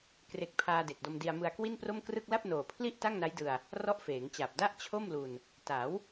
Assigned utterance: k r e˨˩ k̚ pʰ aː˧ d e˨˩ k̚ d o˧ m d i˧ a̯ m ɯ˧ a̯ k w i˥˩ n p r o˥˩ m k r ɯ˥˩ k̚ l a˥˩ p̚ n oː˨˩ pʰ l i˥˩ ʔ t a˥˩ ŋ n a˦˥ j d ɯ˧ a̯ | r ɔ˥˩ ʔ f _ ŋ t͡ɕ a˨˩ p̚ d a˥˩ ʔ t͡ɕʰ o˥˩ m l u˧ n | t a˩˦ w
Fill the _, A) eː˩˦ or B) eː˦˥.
A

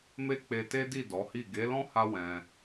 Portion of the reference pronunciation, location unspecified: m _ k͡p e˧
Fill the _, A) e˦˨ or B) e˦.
B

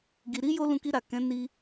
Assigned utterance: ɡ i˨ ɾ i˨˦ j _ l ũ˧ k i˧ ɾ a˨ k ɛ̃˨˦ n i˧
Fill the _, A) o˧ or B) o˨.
A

